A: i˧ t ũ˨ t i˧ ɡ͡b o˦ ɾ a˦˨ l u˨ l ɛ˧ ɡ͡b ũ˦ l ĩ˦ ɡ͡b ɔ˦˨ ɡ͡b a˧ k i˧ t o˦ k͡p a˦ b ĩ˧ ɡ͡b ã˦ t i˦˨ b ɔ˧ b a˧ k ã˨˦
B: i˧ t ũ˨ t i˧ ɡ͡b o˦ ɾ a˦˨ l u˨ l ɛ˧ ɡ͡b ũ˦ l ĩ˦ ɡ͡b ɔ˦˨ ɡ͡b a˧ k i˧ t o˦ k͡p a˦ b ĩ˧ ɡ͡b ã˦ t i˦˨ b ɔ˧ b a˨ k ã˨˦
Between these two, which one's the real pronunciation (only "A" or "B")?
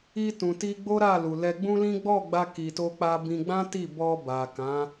B